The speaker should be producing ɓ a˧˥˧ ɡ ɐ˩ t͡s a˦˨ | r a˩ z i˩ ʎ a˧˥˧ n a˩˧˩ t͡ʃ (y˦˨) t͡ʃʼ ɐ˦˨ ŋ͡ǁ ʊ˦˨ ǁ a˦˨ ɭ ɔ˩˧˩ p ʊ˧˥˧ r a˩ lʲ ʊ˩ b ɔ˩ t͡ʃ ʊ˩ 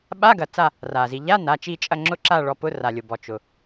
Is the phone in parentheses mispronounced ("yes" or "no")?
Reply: yes